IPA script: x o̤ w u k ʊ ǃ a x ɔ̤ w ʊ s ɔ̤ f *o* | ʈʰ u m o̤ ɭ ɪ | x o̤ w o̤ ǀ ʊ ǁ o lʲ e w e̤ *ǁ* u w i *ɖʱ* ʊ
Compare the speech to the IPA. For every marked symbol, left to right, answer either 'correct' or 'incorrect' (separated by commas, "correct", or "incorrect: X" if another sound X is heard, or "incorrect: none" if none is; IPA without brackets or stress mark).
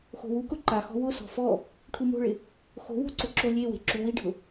incorrect: ɔ, correct, correct